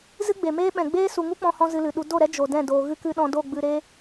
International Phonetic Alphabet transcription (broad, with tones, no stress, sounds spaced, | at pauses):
z ɨ˦ ɡ͡b e˨ m eː˦ ɓ ɛ̃˨ ɡ͡b eː˦ s u˨ ŋ u˦ k͡p ɔ̃˧ h ɔ̃˧ z ɨ˧ l ɨ˨ ɗ u˧ d o˦˨ ɾ ɛ˦ d͡ʒ o˨ d ɛ̃˦˨ d oː˨ ɣ ɨ˦ k ɨ˦ ɗ ɔ̃˧ d o˦˨ ɡ͡b ɨ˧ ɾ e˧